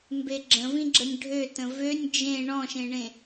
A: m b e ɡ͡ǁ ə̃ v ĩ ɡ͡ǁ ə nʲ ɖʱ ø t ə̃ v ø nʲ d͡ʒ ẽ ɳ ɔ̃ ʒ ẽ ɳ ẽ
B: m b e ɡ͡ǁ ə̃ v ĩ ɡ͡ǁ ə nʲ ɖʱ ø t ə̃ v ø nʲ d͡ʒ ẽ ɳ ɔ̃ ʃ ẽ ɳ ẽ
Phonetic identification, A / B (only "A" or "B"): B